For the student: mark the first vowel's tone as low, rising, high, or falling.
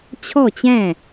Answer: falling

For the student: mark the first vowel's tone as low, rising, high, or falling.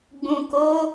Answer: low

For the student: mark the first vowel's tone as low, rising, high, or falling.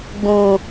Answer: low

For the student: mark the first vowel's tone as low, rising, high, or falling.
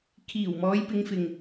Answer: low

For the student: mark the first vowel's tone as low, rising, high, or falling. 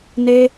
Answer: high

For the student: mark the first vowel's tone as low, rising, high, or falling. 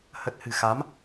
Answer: low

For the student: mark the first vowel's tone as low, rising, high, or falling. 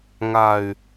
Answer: low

